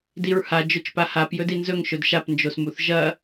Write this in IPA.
diɹha d͡ʒɵt͡ʃpahap jɵdinzɵŋ ʃɵdʃap nd͡ʒosmuθʒɐ

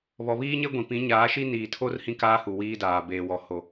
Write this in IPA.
βɔ˨βiː˦ɲe˦ ɡʷĩ˨ pĩ˨˦ ɲaː˨˦ʃi˦niː˨tʰo˦r hĩ˦kaː˦ hu˨wiː˦daː˨ beː˨wɔ˨ho˨

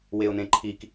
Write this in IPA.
weʊ̯nẽǃʰik

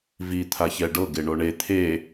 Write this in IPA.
vi t̪ʰaçɛɖɤ ɡeɳoɳe t̪ʰe

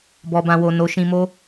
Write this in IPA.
bɔ˨bã˨wo˨ no˨˦ ʃĩ˧mo˦

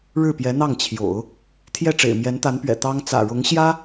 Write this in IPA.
ɻɻ̩˥˩pjɛ˧˥n̪ɑ˥˩ŋt͡ɕʰjo̰˨˩˦ʊ̯ | t̪ʰjɛ˥˩ʈ͡ʂḛ˨˩ɪ̯mjɛ˧˥n t̪a˧˥npɥɛ̰˨˩ t̪ɑ˥ŋ t͡sä̰˨˩ɻʊ˧˥ŋɕjä˥

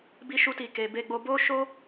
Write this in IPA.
bi˦ʃu˦ti˧ ke˨be˧ɡ͡bo˧ bo˦ʃo˦

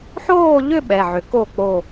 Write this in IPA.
ħoː˥˧ʎʏ˥˧ ɓɛ˩˧˩ʕʏ˨˩˦ ko˥˩k͡po˧˩

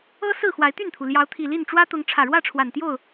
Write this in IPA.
ɤ˦ sɹ̩˥˨xwa˨˦ɪ̯t̪y˥˨nt̪ʰu˩ ljɑ˨˦ʊ̯t̪ʰi˨˩li˥˨n ʈ͡ʂwä˦t̪ʊ˨˦ŋ ʈ͡ʂʰä˨˩ɻwä˥˨ʈ͡ʂʰwa˨˩nt̪jo˥˨ʊ̯

